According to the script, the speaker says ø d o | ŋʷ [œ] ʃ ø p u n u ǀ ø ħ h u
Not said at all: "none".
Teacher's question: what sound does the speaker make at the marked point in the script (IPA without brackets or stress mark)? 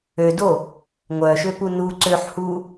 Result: œ